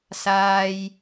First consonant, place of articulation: alveolar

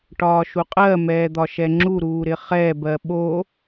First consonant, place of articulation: retroflex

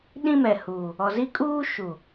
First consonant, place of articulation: alveolar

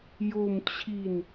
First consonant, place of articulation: palatal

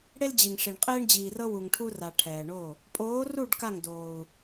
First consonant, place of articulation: retroflex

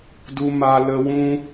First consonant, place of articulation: alveolar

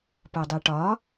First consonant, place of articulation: labial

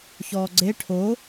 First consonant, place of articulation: palatal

